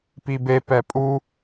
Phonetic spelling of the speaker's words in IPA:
pibepɛ pʼu

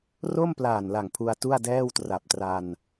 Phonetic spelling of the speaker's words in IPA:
ro˥˩mplaː˨˩nla˨˩ŋ pʰu˧a̯tu˥˩a̯dɛː˥˩w tra˨˩p̚tra˧n

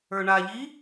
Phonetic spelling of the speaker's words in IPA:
ə˞ɳaʎi

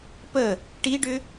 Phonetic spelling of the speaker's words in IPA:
pə | ʈiɖʏ

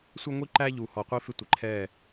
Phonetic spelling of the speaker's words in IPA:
sʷʌ˦ŋʷi˦ ǃæ˦ʎu˨ hɔ˨qʷi˦fɪ˦tʷɪ˨ ǃʰɛ˦˨

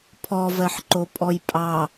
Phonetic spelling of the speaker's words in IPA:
pʰɔvɜħǃopʼɔj pʼɑ

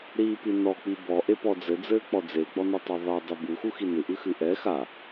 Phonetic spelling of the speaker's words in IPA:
ɾiːpinɔk͡pi bɔ ʔepɔd͡zɘd͡zɘː k͡pɔd͡zeɡ͡bɔ nɔtˤaðˤɛ dˤebuxu xinɨʔɨxɨ ʔɛ xa

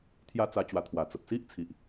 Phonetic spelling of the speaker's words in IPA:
t̪ʰja˦t͡sa˧t͡ɕwa˨˩ t̪ʰwa˨˩ t͡sə˨p̚ si˦ʔ t͡sʰi˨ʔ

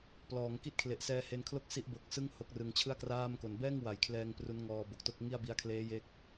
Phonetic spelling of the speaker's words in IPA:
plɔː˩˦ŋki˥˩t̚ kʰle˨˩ʔsɛː˧he˧nkʰlo˥˩k̚ si˦˥ʔbo˨˩k̚ sɯ˥˩ŋ ho˦˥k̚rɯ˧ŋ t͡ɕʰɯ˥˩a̯kraː˥˩mko˨˩n bɛː˥˩ŋwa˩˦jkʰlɛː˧ŋ pru˦˥nŋɔː˧bo˨˩k̚to˥˩k̚ ŋi˥˩a̯bi˦˥a̯ kʰleː˦˥je˦˥k̚

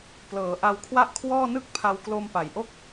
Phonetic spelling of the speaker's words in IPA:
plɤː˩˦ ʔa˧wkʰwa˥˩ʔkʰwɔː˥˩ nɯ˥˩k̚pʰa˧w klo˧mpa˩˦jʔo˥˩k̚

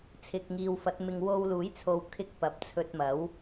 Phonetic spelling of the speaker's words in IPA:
t͡sʰɪ˨k̚ŋiː˨wfɐ˨˥t̚mɪ˧ŋ wo˧wluː˨˥jt͡sʰo˨˧w kʰɪ˧k̚ pɐ˨˥p̚t͡sʰɵ˧t̚mɐ˨˥w

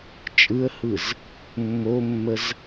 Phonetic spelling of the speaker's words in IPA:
t͡ʃʼɯə̯hɯz | mːomːəz

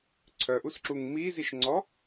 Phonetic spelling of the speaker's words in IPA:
ǀʰœʔusǁuŋ miziʃŋ͡ǀɔ

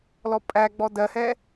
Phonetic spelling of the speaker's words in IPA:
lɔpʼæɡ͡bɔ dɜhɛ

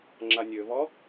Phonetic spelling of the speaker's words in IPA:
ŋ͡ǁanʲøvɔ

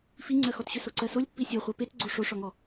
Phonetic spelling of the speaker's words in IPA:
fiŋ͡ǀɜxɔtɕʏ soǀɜsolʲpːi sʲɔχʷɜ petɡ͡ǀo ʂoʂɔŋɔ

